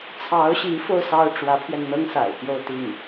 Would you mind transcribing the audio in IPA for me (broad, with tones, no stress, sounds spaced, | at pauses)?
t͡sʰ ɑ˧˥ ʊ̯ ɕ i˧˥ f o˧ ʊ̯ s ɑ˥ ʊ̯ ʈ͡ʂ w ä˧˥ pʰ ɥ ɛ˧ n n̪ ɤ˥ ŋ s a̰˨˩ ɪ̯ p j o˥˧ ʊ̯ t̪ i˥˩ ŋ